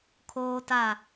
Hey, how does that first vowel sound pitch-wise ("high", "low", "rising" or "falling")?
high